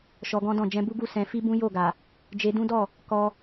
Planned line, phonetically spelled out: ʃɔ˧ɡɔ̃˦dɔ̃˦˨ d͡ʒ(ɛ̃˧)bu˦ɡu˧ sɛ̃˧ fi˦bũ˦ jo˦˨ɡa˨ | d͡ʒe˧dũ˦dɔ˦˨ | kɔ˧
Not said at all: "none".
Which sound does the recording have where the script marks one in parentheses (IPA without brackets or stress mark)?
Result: ɛ̃˧